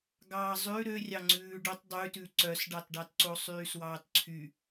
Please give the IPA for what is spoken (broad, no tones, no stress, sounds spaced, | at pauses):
ɡ ɑː zˤ ʉ ɾ ø rʲ ɑ ŋ͡ǀ ʉː ɖ ɵ tˤ dˤ ʉ t ʉ ǀ œ s ɖ ɑ t ɖ ɑ t ǀ o sˤ yː s w ɑː t ǀʰ y